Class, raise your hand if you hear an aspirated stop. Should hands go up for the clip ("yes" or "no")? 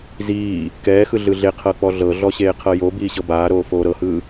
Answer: yes